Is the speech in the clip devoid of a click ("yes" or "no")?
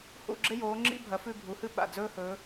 no